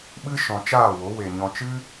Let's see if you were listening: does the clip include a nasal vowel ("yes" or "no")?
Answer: yes